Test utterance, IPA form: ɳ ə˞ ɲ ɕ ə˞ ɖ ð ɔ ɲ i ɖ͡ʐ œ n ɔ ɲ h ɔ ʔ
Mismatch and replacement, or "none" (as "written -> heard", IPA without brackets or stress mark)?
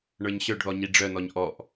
h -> ʔ